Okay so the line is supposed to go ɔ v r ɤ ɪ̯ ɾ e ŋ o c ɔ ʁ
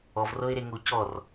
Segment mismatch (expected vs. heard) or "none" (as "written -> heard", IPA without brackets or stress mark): ʁ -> r